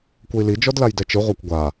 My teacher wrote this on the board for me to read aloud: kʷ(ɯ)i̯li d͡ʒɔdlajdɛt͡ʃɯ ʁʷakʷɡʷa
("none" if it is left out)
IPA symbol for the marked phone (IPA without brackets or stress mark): ɤ